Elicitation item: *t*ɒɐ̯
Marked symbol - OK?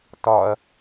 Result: yes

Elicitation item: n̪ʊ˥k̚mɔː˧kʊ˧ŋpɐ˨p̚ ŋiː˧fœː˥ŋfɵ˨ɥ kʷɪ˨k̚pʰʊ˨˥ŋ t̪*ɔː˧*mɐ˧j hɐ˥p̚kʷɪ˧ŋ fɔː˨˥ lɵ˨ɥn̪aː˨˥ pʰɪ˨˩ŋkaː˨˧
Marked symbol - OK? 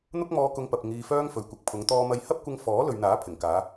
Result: yes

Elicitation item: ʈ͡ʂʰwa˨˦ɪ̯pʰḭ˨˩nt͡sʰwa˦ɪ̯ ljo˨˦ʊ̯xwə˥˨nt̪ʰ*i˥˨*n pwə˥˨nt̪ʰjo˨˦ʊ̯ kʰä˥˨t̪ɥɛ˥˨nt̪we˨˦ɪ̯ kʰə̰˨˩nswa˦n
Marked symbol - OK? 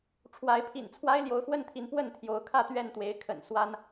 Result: no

